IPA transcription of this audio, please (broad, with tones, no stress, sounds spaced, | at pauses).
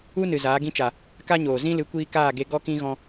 u˦ n ɨ˨ z aː˨˦ ɡ ĩ˦ t͡ʃ a˨ | k a˦ ɲ oː˨ z ĩ˦ l ɨ˨˦ kʷ iː˧ k aː˦˨ ɡ e˧ ɡ ɔ˦ k ĩ˦ ɣ ɔ̃˧